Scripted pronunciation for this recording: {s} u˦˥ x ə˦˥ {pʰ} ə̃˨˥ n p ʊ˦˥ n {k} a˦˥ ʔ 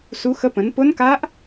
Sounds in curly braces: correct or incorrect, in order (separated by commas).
correct, incorrect, correct